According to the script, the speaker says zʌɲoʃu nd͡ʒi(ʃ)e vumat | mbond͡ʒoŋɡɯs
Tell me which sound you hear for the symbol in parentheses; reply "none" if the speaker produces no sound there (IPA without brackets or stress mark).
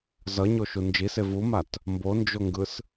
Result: s